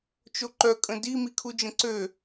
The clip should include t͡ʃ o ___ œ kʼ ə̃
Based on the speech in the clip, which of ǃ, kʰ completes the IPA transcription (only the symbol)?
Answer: ǃ